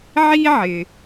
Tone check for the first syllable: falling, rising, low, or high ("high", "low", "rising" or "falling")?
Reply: high